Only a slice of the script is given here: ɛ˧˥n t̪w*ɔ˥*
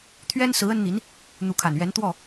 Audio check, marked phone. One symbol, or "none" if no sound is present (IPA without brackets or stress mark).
ɔ˥˩